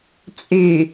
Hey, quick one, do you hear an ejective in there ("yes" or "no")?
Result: yes